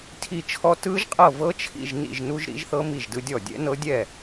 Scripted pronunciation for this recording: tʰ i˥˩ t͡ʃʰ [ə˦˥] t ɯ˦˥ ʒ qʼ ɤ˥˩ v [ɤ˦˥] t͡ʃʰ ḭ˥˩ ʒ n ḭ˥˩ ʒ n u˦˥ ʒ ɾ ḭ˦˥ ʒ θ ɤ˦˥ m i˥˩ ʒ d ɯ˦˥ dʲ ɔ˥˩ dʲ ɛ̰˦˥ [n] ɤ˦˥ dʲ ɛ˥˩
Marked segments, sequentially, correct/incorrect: incorrect: ɔ˦˥, correct, correct

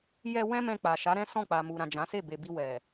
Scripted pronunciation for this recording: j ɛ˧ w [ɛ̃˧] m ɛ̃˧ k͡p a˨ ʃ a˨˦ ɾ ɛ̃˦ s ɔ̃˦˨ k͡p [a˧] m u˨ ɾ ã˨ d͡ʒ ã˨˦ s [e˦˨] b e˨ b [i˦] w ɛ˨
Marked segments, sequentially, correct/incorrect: incorrect: ɛ̃˦, incorrect: a˨, correct, incorrect: i˧

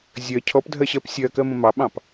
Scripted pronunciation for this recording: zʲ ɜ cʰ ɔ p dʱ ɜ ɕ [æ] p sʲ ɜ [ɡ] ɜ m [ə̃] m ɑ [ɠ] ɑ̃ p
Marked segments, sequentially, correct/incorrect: incorrect: ɜ, incorrect: k, correct, incorrect: ɓ

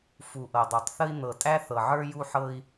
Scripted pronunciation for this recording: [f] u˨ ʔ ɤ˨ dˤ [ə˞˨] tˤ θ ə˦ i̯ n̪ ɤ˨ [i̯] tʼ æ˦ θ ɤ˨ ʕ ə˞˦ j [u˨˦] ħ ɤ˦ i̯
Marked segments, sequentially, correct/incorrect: correct, correct, incorrect: none, incorrect: u˦

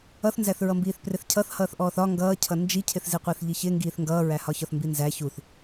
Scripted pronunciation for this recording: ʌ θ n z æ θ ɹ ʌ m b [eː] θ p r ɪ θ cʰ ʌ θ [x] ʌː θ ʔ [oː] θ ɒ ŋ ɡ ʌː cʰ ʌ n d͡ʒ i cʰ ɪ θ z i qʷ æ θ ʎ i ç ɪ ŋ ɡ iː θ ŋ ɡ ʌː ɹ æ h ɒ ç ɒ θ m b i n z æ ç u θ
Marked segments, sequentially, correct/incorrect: incorrect: iː, incorrect: h, incorrect: ɔː

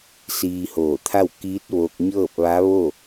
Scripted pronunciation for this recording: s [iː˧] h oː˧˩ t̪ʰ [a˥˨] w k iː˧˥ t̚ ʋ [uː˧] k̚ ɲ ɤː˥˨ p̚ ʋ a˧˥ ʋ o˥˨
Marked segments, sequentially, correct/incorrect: correct, correct, incorrect: oː˧

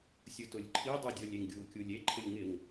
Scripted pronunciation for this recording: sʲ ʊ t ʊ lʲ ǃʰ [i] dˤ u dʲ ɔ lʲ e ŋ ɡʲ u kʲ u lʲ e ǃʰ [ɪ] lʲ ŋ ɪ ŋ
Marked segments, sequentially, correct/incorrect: correct, correct

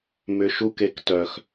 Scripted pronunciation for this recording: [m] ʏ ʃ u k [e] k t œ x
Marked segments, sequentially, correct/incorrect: correct, correct

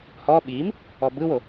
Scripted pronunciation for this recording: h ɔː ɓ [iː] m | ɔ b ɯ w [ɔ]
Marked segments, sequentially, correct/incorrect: correct, incorrect: o

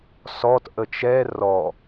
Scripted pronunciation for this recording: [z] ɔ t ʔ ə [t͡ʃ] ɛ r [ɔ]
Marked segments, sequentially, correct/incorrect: incorrect: s, correct, correct

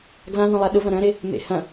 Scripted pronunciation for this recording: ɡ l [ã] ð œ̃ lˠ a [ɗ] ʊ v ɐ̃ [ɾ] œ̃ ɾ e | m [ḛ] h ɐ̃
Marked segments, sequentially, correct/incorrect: correct, correct, correct, correct

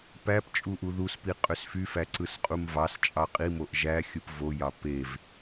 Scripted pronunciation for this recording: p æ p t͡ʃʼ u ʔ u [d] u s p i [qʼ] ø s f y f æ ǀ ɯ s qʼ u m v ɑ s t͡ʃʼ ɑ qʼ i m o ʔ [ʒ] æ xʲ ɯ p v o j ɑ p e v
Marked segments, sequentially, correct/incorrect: incorrect: ð, correct, correct

